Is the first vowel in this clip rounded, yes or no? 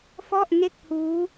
yes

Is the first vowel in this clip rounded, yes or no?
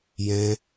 no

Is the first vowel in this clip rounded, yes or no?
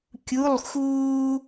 yes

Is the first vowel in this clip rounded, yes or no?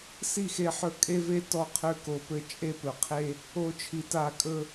no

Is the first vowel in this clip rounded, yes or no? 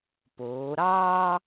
yes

